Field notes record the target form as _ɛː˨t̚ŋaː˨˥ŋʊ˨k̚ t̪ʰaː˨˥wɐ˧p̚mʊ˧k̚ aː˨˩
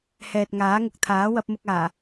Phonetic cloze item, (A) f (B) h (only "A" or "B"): B